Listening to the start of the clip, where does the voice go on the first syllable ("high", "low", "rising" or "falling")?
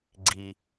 low